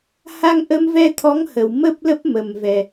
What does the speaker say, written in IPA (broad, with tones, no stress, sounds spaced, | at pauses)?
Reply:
h a˧ ŋ ʔ ə˧ m v ɛ˧ t̪ʰ ɔ˨˦ ŋ h ə˨˩ w m ə˦˥ p̚ l ə˦˥ p̚ m ə˨˩ m v ɛ˨˩